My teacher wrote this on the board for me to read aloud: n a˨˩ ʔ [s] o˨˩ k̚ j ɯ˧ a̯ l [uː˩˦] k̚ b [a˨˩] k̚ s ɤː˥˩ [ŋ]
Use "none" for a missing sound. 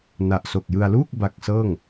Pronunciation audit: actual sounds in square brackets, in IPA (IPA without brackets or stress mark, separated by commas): s, uː˥˩, a˦˥, ŋ